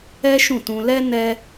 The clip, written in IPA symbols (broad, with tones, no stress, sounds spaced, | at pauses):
ɛ˦ ʃ ũ˦˨ t ũ˧ l ɛ˦ n ɛ˦